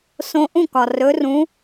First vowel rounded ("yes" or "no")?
yes